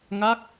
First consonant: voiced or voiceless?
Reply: voiced